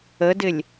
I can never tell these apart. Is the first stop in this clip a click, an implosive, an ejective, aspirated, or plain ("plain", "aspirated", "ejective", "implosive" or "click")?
plain